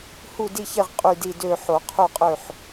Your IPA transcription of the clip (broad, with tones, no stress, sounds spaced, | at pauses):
h u˦˨ d i˦˨ ç e˦˨ ʁ qʼ y˦˨ d i˦˨ d ø˦˨ ħ o˨˩˦ qʰ u˦˨ qʼ ø˦˨ ħ